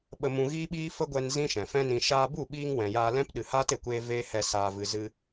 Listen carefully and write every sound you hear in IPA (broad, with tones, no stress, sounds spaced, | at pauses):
ɓ ə˧ m ũ˧ ɣ iː˦ ɓ iː˦ f ə˦ ɡʷ ɛ˧ n z ĩ˦ ʃ ɛ̃˨ f ɛ̃˦ n ĩ˧ ʃ aː˧ b u˦˨ ɓ iː˧ ŋ w ɛ̃˨ j aː˧ l ɛ̃˦ p ɗ ɨ˨ h aː˦ t e˨ kʷ eː˧ v eː˦ h ɛ˧ s aː˨ v ɨ˨ z ɨ˧